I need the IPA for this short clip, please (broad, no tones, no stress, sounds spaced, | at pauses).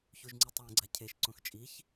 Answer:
ç u ʒ ŋ͡ǀ i tˤ w ɛ̃ ɡ͡ǀ a cʰ e ʃ ǀ õ x t͡ʃʼ i ç